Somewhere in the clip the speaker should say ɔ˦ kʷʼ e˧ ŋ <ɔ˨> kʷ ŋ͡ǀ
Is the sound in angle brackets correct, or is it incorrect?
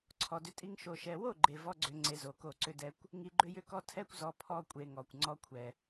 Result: correct